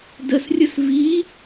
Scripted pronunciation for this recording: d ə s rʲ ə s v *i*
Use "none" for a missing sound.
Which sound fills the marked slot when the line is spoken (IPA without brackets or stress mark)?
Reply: i